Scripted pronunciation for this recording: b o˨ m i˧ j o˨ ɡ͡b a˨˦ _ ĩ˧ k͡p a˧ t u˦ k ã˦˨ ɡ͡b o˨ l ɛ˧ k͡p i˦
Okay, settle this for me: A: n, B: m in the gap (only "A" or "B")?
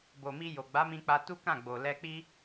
B